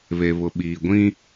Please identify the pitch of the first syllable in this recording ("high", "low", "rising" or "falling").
low